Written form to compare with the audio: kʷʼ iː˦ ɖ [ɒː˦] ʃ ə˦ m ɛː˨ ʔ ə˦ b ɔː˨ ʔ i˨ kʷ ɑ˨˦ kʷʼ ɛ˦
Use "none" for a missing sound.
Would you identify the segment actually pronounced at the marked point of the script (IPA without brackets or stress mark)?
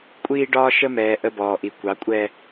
ɒː˦